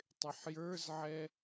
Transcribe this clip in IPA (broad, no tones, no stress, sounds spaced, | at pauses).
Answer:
tˤ ɪ ħ j ə˞ z ʕ ɛ